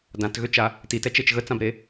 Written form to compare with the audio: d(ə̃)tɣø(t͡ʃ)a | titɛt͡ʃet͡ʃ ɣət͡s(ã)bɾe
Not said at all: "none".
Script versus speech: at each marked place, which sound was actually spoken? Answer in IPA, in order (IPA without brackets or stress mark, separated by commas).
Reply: ã, t͡ʃ, ã